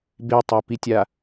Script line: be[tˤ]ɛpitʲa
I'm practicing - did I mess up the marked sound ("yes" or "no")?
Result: no